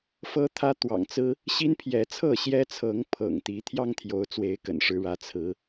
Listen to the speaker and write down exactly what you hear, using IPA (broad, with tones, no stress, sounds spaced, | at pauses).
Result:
f ɤ˦ t̪ʰ ä˦ t̪ w ɑ̰˨˩ ŋ t͡s ɹ̩˦ | ɕ i˦ n pʰ j ɛ˨˦ t͡sʰ ɤ˥˨ ɕ j ɛ˦ t͡sʰ ɤ˨˦ ŋ pʰ ɤ̰˨˩ ŋ t̪ i˨˦ t̪ʰ j ɑ˦ ŋ t̪ʰ j o˨˦ ʊ̯ t͡s w e˨˦ ɪ̯ k ə̰˨˩ n ʂ ɻ̩˨˦ ɻ ä˨˦ t͡sʰ ɹ̩˨˦